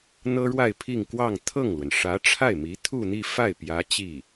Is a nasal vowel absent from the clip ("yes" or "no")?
yes